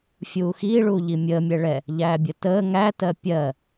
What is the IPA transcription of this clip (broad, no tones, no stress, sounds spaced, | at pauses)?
fʲ uː x iː ɭ uː ʎ i mʲ əː mʲ ɛ ɭ ɛ | ʎ æː bʲ ə t əː ŋ æ t ɜ pʲ ɜ